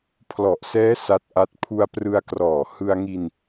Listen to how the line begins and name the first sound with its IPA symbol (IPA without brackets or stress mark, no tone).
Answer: pʰ